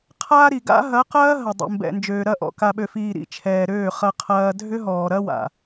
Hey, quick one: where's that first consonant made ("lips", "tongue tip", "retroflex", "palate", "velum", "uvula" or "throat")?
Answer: uvula